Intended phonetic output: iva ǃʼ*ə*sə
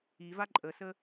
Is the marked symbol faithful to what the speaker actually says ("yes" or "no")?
yes